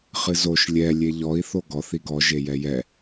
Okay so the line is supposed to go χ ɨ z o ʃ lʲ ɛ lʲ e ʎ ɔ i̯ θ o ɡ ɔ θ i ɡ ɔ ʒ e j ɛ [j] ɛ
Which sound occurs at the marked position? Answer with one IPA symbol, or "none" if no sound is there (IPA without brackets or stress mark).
j